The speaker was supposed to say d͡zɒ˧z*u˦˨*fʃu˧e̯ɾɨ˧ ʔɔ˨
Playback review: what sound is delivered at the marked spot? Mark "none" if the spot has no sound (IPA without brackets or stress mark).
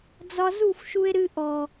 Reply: u˦˨